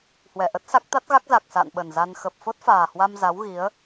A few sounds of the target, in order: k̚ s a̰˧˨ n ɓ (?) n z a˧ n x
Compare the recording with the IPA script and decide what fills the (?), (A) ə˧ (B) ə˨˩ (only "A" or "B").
B